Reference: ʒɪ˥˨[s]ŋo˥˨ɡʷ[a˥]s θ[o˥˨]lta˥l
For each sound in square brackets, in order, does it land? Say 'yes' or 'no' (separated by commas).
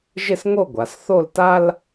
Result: yes, no, yes